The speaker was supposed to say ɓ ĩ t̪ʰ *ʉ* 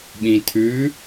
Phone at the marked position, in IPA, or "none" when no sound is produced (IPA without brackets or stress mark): ʉ